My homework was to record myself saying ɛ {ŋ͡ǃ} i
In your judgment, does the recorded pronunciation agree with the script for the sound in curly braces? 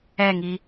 no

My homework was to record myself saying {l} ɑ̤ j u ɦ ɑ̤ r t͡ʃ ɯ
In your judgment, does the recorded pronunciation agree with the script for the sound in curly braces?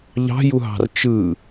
no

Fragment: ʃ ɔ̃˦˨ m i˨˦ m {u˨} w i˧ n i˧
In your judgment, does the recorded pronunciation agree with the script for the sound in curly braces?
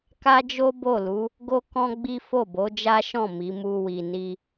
no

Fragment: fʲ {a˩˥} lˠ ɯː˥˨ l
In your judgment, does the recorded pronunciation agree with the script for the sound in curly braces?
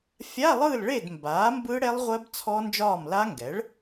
no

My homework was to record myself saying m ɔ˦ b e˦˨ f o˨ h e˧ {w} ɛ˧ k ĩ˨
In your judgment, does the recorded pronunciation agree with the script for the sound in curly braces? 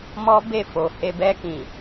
no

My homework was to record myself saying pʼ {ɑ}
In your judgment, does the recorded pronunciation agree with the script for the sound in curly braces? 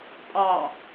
yes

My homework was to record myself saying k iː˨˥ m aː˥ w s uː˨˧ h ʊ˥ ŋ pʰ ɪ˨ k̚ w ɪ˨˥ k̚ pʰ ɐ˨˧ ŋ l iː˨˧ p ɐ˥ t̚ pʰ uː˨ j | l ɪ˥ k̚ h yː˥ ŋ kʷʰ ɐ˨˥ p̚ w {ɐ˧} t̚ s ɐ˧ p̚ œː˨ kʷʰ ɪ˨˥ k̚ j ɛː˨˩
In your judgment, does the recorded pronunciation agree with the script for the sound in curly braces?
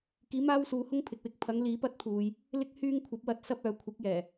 yes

